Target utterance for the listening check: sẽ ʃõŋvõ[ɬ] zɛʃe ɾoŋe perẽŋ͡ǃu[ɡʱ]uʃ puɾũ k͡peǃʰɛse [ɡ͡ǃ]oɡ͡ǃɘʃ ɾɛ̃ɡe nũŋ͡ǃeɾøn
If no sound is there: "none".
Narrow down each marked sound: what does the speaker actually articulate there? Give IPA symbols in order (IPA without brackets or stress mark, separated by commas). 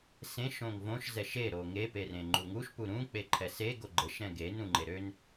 ʃ, ŋ, ɡ